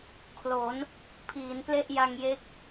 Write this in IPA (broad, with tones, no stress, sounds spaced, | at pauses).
kʰ l o˩˦ n | pʰ iː˩˦ n p l e˥˩ ʔ j a˧ ŋ j e˦˥ k̚